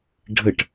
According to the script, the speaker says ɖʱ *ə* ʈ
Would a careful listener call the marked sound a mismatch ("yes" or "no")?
no